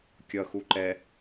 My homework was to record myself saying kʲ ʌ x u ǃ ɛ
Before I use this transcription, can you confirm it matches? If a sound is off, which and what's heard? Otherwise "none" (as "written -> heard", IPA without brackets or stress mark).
none